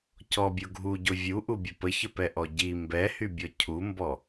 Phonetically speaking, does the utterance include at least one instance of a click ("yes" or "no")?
no